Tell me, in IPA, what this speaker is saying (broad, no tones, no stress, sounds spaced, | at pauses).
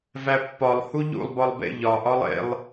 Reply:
v æ pː ɒ lˠ h u ʎ ṵ lˠ b ɒ lˠ b ḛ ʎ ɒ ʔ ɒ lˠ ḛ lˠ